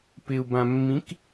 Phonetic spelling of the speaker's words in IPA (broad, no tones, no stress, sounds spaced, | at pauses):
p ɪ u̯ b ã mː ĩ k